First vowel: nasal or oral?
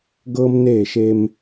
oral